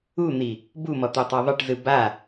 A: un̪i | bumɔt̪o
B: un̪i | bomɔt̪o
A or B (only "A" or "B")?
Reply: A